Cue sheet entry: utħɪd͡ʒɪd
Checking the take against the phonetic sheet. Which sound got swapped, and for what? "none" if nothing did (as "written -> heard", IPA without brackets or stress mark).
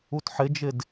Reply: none